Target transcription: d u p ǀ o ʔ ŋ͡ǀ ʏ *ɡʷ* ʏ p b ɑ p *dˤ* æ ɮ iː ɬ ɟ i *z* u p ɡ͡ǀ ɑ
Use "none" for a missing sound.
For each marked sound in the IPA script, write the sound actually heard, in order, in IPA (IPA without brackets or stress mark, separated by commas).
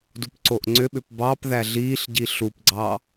ɓ, ð, ɬ